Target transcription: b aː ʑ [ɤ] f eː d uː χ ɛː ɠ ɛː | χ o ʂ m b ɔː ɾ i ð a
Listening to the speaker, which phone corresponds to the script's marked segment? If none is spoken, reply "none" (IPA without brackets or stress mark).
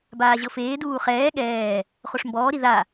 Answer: ɤ